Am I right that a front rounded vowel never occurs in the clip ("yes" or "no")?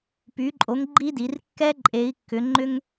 no